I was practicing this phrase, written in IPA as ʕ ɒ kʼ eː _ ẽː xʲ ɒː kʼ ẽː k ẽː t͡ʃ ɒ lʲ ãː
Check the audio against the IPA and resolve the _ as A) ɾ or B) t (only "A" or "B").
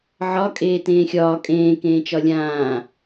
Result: B